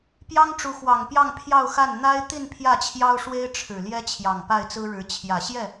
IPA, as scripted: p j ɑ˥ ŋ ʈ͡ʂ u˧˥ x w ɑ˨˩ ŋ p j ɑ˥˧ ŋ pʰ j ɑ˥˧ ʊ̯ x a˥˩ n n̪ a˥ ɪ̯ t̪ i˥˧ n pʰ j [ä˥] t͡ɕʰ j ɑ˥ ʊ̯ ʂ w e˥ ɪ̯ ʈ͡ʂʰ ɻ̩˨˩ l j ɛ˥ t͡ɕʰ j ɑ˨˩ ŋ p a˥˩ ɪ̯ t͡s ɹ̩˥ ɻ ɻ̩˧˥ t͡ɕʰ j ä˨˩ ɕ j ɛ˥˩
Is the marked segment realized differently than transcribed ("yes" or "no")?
yes